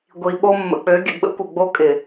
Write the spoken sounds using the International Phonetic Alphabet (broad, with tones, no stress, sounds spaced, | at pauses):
ɡʷ i˨ ɓ o˦ mː ə̰˨ k͡p ø˨˦ ɡʲ ə̰˨ ɡ͡b ə̰˦ kʷ ʌ˨ ɡ͡b o˦ kʼ ɪ˨